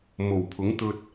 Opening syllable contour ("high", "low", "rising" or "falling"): low